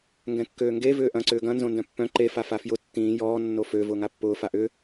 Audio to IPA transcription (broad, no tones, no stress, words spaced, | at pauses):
ŋɡɛ̃kːøːŋɡe vʏːʔɐ̃ ǀʏːɡɐ̃ nzõndœ̃pːœ̃ ǃe fafafjʊ tːĩː jɔː nːofø vʊːŋapːʊː faʔʏ